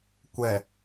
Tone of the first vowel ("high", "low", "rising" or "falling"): low